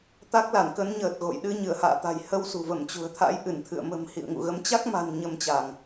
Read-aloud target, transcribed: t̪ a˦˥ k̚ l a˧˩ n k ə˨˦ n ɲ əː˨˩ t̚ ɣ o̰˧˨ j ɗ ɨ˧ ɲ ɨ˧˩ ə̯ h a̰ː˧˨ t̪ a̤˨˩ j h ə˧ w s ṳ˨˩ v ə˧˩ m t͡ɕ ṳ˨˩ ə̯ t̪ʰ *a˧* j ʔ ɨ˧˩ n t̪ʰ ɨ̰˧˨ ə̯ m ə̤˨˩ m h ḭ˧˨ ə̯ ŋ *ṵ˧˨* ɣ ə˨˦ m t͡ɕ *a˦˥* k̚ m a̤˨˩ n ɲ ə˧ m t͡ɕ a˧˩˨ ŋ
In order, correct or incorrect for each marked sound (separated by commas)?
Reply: incorrect, correct, correct